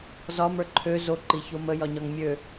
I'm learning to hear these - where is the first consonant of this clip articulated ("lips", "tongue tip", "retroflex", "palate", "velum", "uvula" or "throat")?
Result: tongue tip